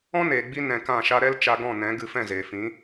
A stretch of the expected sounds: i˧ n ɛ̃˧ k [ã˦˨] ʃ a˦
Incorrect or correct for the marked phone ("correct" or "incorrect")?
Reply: correct